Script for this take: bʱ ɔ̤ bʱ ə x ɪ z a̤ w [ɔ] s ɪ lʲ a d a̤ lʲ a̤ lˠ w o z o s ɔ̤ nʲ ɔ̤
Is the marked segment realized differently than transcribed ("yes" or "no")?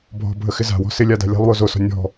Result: yes